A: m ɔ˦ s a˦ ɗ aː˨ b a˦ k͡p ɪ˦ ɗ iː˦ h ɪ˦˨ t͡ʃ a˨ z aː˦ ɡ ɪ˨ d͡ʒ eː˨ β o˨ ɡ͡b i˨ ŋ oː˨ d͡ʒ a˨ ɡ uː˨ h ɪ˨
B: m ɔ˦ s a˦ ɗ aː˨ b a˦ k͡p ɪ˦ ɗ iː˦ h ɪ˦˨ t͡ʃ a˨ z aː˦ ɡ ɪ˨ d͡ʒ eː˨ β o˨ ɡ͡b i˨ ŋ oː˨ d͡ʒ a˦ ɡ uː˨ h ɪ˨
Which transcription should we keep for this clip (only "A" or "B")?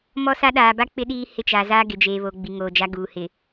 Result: B